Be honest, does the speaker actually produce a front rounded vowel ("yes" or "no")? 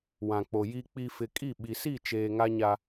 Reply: no